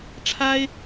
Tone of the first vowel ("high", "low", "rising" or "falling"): high